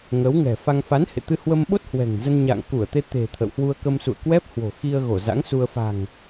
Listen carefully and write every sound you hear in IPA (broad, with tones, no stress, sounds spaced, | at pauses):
ŋ ə˨˦ w ŋ ɛ̤˨˩ f a˧ ŋ f a˨˦ n h ḛ˧˨ t̪ ɨ˧ h w ə˧ m ɓ o˦˥ t̚ h w ɛ̤˨˩ ŋ z ə˧ n ɲ a̰ː˧˨ ŋ k u˧˩ ə̯ t̪ e˧ t̪ e̤˨˩ t̪ʰ ə̰˧˨ w h w u˧ ə̯ k ə˧ m s ṵ˧˨ ə̯ k w ɛ˦˥ p̚ h w o̤˨˩ x i˧ ə̯ ɣ o˧˩ z a̰˧˥ ŋ s u˧ ə̯ f a̤˨˩ ŋ